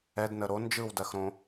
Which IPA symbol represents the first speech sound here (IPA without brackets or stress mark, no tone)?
ɛ